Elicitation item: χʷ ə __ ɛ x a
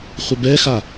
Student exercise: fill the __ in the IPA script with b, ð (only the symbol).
b